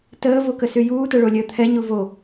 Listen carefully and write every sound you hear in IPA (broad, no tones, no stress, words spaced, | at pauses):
təː vokəsyjuː təɭolʲəːt̪ʰɛ ɲuvo